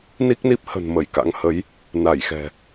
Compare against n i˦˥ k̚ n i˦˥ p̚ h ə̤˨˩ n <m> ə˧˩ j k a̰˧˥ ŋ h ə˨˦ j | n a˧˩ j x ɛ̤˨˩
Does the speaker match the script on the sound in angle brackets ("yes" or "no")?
yes